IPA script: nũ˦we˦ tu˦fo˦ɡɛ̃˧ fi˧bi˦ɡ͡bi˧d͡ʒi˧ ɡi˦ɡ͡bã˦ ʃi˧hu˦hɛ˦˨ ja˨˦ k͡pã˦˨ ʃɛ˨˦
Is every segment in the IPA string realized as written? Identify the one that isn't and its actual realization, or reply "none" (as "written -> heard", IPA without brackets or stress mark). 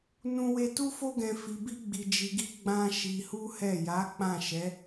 none